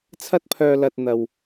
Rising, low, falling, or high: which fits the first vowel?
high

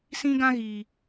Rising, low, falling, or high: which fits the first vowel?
high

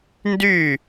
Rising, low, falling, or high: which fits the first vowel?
falling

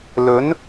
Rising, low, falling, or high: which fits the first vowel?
rising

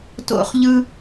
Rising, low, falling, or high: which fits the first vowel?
high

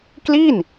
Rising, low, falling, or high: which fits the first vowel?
falling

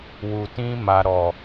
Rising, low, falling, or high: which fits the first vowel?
low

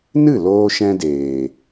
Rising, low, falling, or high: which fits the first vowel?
falling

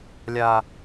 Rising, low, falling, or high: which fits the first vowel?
low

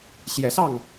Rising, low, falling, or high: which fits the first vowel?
rising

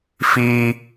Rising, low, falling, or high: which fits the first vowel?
high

